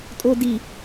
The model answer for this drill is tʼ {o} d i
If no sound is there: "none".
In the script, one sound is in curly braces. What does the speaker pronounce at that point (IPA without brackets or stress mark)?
o